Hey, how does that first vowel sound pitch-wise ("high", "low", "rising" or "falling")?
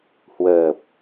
low